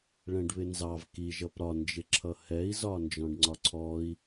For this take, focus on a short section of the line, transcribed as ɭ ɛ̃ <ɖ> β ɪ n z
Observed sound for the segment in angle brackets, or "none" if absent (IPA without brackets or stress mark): ɖ